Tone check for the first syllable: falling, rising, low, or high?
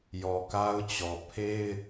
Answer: low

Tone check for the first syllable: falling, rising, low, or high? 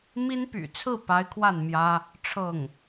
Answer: high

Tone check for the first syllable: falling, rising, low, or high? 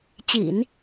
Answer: low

